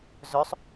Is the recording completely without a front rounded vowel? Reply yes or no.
no